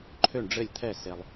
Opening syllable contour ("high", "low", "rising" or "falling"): falling